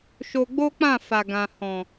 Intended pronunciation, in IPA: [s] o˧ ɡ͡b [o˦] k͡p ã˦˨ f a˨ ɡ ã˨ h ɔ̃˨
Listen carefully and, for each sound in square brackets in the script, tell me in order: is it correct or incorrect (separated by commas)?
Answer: incorrect, correct